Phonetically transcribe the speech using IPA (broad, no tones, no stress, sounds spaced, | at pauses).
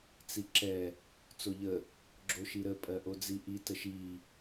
t͡s i ǁ ɛ | t͡s o ʎ ə | ɡ͡ǁ o ʃ i ɾ ə pʼ ɜ ʔ o d͡z i ʔ i t ə ʃ i